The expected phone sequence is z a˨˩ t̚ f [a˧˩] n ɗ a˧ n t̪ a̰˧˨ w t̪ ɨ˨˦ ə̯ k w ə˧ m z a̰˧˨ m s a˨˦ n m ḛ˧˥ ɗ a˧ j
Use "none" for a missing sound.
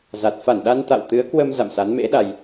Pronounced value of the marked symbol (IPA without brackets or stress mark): a˧˩